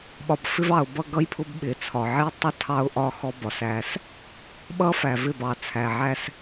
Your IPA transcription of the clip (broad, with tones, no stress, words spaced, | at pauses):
ɓɒ˨bfɪ˦vɑ˨ʊ̯ bʌ˦ɡʌ˦jpʰʊ˦b ɓɪ˨t͡sʰɒ˨ ʕi˦tˤʌ˦ tʰɑ˦ʊ̯ ʔɒ˦ xɔ˦bɒ˨s æ˦s | ɓʌ˦fæ˨vɪ˦˨b ɑ˨ t͡sʰæ˨ʕæ˦s